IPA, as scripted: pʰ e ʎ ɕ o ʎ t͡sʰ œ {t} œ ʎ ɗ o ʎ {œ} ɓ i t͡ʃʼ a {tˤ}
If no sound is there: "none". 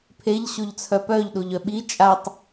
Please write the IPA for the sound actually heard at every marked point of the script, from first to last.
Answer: p, œ, tˤ

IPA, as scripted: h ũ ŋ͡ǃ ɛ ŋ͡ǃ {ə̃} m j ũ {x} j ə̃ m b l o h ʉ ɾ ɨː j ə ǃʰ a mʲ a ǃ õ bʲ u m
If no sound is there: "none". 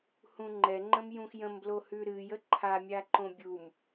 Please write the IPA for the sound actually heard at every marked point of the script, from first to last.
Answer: ə̃, x

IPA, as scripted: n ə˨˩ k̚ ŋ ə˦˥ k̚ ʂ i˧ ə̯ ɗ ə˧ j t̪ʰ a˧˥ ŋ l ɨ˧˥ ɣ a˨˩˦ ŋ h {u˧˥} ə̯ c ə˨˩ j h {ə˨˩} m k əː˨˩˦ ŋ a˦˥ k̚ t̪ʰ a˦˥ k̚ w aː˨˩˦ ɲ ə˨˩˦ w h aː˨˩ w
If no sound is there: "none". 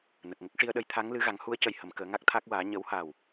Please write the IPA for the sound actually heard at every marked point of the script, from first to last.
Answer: u˧˥, ə˨˩˨

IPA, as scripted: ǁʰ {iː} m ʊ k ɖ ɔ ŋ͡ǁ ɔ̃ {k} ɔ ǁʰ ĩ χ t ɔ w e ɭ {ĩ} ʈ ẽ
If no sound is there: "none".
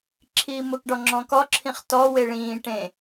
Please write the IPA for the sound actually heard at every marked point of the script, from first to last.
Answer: iː, k, ĩː

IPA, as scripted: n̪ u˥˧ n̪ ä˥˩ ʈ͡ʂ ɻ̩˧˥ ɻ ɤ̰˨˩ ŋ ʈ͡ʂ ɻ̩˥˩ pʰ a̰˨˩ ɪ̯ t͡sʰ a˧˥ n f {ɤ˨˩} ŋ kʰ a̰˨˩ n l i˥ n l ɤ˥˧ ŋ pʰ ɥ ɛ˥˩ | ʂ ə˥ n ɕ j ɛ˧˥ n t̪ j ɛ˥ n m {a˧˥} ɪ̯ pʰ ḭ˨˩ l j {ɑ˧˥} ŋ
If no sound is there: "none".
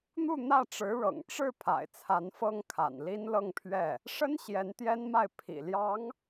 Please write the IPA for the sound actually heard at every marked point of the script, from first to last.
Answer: ɤ˥, a˥˩, ɑ˧˥

